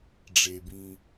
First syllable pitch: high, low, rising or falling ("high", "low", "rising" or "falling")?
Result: low